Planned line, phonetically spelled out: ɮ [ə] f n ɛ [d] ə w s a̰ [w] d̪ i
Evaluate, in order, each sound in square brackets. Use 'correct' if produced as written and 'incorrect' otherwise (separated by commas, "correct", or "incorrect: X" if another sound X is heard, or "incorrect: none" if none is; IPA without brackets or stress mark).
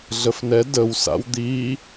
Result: correct, correct, correct